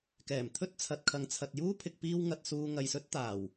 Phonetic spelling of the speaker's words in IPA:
k ɛː˨˩ m t̪ʰ ɵ˥ t̚ t͡sʰ ɐ˨ t̚ kʰ ɐ˨ ŋ t͡sʰ ɐ˨ t̚ j uː˥ pʰ ɪ˧ k̚ p iː˥ w ŋ ɐ˧ t̚ s uː˧ ŋ ɐ˨ j s ɵ˧ t̚ t̪ aː˨˩ w

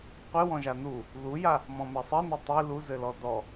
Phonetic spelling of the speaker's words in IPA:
qʷ ɨ w ɔ̃ ʒ a n u | ð u j a | m ɔ̃ m e sˤ i n o tˤ i l u z ɘ l ɔ d ɔ

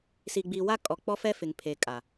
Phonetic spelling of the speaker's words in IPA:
s i˨ ɡ͡b i˨ w a˦ kʼ ɔ˨ k͡p ɔ˦ f ɛ˦ f ɪ˨ ŋ pʰ e˨ kʼ a˨

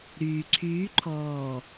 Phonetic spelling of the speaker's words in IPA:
ɾ yː ǀʰ yː ǃʰ ɔː

